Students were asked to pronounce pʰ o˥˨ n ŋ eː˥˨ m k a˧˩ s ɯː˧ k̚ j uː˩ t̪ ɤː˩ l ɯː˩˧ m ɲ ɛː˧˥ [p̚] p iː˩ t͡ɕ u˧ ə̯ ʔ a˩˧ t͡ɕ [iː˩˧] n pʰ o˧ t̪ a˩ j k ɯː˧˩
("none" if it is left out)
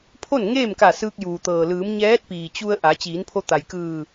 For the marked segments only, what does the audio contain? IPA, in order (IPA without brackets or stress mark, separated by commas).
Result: t̚, iː˩˧